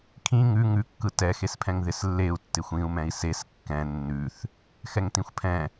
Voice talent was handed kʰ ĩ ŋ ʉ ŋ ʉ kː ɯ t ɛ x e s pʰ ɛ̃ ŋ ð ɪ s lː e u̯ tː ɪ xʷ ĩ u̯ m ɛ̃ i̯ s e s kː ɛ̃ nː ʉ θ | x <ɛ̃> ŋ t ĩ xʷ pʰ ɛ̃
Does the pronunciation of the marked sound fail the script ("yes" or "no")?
yes